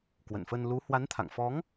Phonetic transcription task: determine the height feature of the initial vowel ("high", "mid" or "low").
mid